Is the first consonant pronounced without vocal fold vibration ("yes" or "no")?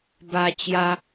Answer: no